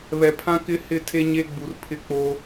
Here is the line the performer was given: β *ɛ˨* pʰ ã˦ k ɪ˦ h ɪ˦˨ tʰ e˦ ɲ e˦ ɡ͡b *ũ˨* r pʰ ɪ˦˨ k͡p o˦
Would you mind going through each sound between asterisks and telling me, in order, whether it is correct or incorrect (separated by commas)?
correct, incorrect